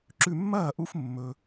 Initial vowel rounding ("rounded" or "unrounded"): rounded